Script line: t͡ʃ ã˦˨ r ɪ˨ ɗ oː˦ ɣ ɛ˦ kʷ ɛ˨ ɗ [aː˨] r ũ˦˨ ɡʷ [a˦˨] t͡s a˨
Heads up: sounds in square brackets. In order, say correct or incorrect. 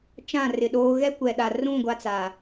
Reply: incorrect: a˨, incorrect: a˦

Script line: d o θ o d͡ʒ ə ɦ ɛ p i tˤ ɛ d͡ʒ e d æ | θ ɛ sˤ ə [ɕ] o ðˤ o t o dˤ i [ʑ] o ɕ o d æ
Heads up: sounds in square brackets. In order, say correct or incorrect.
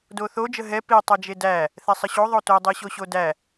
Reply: correct, incorrect: ɕ

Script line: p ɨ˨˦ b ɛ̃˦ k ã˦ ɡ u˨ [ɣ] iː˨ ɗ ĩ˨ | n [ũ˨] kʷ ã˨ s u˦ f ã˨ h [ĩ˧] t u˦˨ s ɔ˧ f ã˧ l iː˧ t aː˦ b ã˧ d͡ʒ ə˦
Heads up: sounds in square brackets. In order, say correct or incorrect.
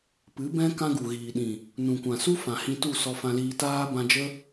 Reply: correct, correct, correct

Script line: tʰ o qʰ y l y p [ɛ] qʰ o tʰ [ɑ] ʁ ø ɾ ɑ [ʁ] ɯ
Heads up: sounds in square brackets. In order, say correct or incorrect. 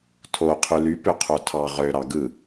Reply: incorrect: ø, correct, incorrect: ɡ

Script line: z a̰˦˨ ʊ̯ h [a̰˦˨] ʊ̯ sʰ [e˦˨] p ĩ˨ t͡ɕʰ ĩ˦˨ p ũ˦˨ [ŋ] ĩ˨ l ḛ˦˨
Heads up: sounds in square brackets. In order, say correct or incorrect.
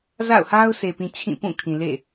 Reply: incorrect: a˦, incorrect: e˨, incorrect: kʰ

